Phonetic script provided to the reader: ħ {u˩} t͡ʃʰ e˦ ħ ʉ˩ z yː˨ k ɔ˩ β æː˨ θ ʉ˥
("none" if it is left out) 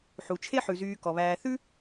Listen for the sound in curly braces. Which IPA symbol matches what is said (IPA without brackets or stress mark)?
u˩